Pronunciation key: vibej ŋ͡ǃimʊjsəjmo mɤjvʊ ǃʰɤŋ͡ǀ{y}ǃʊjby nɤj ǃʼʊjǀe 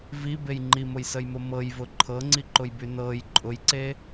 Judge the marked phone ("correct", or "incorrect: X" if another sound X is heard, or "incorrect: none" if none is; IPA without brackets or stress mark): incorrect: i